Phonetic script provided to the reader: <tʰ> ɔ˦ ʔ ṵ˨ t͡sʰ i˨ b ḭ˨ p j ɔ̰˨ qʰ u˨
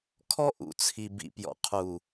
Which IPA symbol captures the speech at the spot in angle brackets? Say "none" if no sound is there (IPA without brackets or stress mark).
kʰ